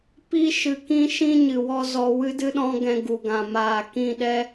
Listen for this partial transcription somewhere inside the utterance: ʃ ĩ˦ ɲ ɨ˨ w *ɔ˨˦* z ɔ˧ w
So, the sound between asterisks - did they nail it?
no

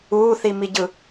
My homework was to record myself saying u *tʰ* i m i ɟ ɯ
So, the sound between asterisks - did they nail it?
no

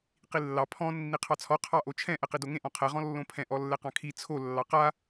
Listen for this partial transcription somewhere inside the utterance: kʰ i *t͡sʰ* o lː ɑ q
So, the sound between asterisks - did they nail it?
yes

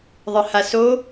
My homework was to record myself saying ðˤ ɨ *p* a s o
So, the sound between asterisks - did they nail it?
no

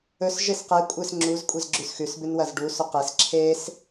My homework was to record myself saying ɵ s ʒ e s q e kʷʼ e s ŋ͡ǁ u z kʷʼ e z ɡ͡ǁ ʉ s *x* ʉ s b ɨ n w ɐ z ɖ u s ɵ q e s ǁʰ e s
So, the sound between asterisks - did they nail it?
yes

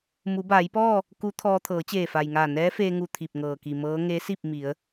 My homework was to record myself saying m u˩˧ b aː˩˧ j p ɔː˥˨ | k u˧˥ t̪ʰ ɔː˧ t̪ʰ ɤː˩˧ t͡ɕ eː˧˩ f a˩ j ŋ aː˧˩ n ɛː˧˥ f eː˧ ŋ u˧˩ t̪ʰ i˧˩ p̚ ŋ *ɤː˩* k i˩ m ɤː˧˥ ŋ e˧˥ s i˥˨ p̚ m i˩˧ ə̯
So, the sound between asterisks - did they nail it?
yes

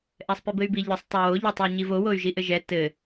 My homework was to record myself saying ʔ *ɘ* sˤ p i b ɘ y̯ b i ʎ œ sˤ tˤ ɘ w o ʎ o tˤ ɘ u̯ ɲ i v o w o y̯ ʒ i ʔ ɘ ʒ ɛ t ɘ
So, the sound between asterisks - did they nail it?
no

